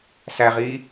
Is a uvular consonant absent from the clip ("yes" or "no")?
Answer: no